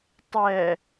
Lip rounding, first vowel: unrounded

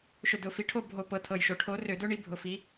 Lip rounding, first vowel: rounded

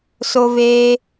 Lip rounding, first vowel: rounded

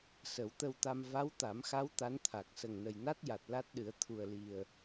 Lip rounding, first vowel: unrounded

